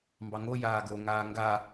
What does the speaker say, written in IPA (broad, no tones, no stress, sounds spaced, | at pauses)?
m b ɑ ŋ o j aː ɡ o ŋ aː ŋ ɡ a